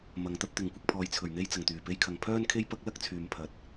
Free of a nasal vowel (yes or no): yes